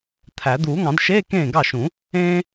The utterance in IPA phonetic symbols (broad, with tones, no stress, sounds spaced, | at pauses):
t̪ʰ æ˨˩˦ d̪ uː˨˩˦ ŋ ɑ̃˨˩˦ d ʃ eː˧˥˧ k ẽː˥˩ ɡ ɑ˥˩ ʃ ũ˨˩˦ | ẽː˥